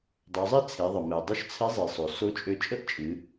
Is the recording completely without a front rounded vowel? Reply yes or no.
no